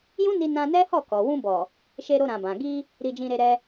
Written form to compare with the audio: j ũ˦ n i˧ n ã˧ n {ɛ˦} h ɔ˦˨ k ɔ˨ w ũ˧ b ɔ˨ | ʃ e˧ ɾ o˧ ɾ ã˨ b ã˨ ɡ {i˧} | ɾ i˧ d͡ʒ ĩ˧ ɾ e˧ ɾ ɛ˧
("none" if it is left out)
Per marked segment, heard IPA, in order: ɛ˦, i˧

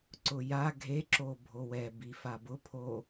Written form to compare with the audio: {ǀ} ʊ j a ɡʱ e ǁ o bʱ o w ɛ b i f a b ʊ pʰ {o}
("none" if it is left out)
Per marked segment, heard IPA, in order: ǀ, o

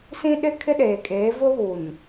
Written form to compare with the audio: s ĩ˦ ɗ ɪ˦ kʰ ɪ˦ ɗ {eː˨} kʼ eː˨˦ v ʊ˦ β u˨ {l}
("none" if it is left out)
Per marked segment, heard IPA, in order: eː˨, n

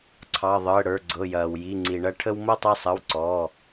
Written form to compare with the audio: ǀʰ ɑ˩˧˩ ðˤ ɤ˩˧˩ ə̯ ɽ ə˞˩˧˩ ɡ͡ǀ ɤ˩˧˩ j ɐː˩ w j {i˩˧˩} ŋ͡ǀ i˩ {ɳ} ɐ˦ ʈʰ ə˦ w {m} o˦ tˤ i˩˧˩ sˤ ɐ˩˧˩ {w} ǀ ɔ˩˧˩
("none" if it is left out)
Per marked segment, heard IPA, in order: i˩˧˩, ɳ, m, w

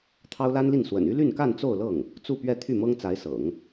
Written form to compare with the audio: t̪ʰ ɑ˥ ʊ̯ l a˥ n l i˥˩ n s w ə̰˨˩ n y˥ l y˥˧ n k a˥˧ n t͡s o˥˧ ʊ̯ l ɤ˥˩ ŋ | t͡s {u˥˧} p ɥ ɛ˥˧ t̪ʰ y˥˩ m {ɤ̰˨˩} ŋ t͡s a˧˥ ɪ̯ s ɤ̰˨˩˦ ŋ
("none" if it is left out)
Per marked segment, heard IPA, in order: u˥˧, ɤ˥

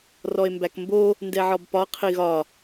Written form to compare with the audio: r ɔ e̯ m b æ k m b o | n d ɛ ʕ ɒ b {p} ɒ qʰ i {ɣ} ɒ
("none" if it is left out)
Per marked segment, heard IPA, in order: p, ɣ

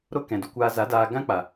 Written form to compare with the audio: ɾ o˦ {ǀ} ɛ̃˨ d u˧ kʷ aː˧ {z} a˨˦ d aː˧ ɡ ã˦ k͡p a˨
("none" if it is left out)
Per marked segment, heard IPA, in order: k, z

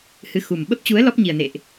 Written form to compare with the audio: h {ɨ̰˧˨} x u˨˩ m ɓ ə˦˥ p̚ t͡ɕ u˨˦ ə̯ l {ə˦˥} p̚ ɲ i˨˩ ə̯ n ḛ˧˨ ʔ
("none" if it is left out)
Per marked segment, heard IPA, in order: ɨ˧, ɔ˦˥

